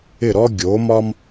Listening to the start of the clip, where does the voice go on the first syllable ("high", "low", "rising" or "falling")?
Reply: falling